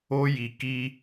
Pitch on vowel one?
high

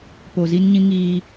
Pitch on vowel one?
low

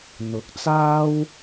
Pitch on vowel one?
rising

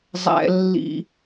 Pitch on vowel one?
low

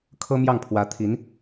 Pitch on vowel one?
high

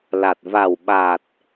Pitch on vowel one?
low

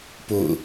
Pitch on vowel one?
falling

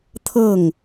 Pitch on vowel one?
falling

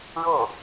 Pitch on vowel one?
falling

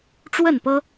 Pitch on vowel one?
falling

